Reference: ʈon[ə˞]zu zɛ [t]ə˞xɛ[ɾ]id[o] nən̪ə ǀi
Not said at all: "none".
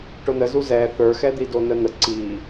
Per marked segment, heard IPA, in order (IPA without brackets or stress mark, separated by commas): ə, θ, d̪, o